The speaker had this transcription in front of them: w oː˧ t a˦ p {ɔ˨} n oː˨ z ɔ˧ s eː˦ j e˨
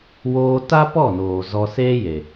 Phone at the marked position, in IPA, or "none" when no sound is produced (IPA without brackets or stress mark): ɔ˦˨